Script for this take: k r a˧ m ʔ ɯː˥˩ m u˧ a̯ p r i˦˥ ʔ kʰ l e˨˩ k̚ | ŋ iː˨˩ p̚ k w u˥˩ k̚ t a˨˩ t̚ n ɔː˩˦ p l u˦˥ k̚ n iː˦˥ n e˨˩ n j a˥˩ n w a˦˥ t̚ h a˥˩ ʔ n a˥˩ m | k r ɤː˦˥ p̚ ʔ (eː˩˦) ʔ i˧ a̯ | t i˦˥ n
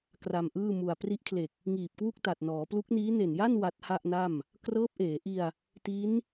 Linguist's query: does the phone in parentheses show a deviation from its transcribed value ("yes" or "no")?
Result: no